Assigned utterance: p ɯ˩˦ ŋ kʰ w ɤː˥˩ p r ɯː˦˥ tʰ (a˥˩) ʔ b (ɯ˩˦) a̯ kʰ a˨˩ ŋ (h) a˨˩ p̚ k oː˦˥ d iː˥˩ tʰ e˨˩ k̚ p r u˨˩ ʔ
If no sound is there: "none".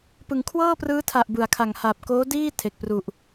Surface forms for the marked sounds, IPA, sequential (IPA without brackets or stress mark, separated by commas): a˨˩, ɯ˩˦, h